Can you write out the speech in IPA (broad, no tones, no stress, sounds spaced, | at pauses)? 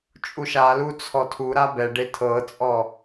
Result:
t͡ʃʼ u ʃ a l u t͡sʰ ɔ tʰ u ɾ a b ɛ ɖ e tʰ ɤ t͡sʼ ɔ